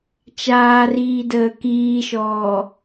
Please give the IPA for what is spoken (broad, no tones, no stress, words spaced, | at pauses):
t͡ʃaːriːdəː kiːʃɔː